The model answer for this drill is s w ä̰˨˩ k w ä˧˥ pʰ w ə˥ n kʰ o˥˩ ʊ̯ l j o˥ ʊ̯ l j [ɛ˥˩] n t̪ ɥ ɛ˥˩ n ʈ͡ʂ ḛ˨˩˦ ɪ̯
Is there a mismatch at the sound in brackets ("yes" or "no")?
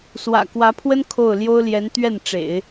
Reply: yes